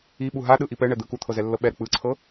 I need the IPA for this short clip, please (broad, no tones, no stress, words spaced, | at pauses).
iɓu ɦaɗɯʔi pɛɳɛ d̪ɯkut̪ʰɤ zɛlːɤɓɛɾɯ k͡pɯǀʰɤ